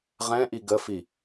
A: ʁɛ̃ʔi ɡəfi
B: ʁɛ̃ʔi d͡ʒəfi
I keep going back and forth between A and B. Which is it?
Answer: A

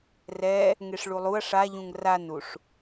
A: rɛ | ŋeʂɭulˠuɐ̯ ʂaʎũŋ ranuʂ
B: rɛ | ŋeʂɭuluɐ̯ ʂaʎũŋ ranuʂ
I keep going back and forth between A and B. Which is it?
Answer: A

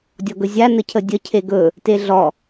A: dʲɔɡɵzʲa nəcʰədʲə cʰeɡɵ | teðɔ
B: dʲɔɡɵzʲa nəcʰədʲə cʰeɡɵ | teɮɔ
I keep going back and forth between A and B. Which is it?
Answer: B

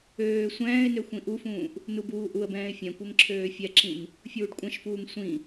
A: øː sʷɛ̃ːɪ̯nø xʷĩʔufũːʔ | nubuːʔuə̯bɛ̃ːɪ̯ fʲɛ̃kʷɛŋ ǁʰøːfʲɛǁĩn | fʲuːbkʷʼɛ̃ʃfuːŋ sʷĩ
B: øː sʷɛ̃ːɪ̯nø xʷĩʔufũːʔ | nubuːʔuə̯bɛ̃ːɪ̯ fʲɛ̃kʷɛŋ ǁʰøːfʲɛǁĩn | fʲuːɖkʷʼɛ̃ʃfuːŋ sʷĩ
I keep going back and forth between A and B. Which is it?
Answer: B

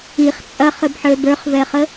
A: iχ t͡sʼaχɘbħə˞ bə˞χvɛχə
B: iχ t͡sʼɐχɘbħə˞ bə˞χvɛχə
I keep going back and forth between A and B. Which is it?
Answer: B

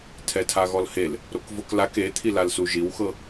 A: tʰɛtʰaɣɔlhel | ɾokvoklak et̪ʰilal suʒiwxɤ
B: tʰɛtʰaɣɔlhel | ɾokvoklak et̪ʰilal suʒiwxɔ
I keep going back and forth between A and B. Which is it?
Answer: A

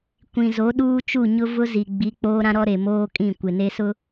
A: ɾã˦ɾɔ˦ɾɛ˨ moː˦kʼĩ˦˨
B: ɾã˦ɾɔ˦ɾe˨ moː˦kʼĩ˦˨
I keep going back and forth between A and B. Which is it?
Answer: B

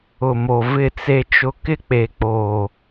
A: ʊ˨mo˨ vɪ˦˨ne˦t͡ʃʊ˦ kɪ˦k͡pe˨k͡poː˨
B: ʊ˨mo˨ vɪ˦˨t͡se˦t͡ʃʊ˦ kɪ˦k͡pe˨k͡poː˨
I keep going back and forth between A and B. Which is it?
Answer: B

